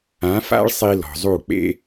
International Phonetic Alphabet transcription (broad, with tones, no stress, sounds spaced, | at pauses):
ã˨˦ f a̰˦ ɭ sˤ i˧ l ɔ̤˨ zˤ u˦˨ k͡p ḛ˦